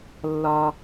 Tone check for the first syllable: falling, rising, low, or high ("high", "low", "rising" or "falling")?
high